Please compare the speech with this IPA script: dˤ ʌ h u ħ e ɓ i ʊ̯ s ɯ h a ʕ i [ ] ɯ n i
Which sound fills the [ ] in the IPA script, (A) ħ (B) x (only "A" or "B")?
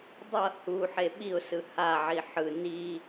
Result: A